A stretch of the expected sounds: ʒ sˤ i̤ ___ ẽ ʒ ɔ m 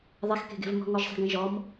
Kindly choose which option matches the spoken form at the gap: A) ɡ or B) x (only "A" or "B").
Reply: A